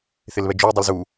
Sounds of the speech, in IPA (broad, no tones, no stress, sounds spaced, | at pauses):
θ ɪ l β ɛ d͡ʒ ɵ i̯ dˤ ɪ l z u